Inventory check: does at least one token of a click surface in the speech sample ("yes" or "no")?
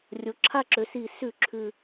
yes